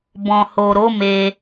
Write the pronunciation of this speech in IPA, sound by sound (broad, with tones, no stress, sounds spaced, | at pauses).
b ɔ̃˨ h o˨ ɾ o˨˦ m e˧